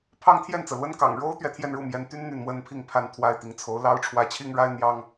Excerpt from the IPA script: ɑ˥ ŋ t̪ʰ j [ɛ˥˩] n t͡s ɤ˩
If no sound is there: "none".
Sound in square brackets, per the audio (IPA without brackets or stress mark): ɛ˥˩